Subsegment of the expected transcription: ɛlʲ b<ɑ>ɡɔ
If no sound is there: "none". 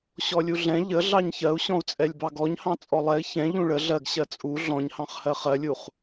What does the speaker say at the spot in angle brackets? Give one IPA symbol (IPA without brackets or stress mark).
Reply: ɑ